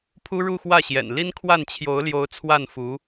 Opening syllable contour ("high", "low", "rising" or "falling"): high